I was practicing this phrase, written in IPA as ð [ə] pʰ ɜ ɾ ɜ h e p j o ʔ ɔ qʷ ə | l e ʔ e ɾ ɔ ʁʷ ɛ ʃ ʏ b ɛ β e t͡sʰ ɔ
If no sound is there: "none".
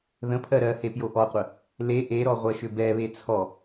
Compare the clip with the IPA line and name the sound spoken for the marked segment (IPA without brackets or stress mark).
ə̃